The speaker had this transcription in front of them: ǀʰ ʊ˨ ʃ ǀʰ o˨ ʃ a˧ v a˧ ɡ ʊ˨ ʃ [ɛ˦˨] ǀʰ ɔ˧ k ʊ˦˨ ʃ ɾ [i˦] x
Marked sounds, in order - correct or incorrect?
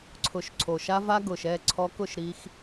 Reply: correct, correct

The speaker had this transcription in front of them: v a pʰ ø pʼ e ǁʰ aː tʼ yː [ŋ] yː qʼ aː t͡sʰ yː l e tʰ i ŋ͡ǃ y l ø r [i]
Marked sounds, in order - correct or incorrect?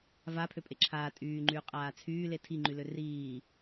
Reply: incorrect: ŋ͡ǃ, incorrect: iː

